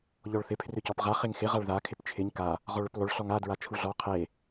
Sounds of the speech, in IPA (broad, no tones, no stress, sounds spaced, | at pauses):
ʎ ɔ ɭ θ ɪ pʰ r ʏ c ɔ p ʁ a χ e ŋ x ɪ ʁ a ɭ ð a kʰ ɪ p t͡ʃʰ ɪ ɲ k a | ʁ ɔ ɭ ʏ p lˠ ʏ ɭ ɬ ɔ ŋ a d ɹ a t͡ʃʰ u ɮ ɔ qʰ e